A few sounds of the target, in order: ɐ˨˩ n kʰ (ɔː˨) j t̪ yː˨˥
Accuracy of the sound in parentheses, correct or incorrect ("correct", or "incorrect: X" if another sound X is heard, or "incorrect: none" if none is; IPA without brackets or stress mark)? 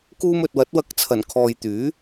correct